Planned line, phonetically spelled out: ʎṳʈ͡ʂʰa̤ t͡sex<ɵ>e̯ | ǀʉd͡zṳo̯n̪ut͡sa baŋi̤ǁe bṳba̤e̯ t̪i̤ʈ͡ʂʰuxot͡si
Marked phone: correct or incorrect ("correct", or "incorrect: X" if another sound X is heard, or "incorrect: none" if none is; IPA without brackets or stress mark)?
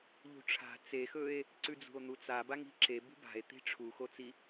correct